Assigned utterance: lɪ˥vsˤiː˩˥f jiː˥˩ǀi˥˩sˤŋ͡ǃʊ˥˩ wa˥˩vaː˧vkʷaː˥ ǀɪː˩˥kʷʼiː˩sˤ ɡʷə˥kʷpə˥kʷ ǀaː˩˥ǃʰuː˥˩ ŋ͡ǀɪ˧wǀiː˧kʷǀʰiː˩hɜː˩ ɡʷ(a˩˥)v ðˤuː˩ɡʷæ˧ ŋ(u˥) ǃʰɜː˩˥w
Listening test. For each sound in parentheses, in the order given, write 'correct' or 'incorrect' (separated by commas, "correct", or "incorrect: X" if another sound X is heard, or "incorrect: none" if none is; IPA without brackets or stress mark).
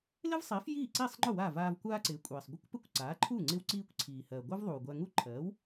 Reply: incorrect: a˥, correct